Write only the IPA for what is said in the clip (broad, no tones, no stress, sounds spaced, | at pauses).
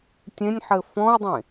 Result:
tʲ ẽ nʲ ħ ɘ f ɔ̃ ʊ̯ dˤ ẽ